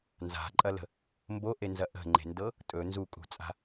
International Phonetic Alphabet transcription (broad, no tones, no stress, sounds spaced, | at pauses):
n z a̤ ǃʼ ɐ l ə̤ | m b o ʔ e n z ɐ ʔ ə̤ ŋ͡ǃ e̤ n d ɤ | tʼ ɵ n z u kʼ ṳ t͡sʼ a̤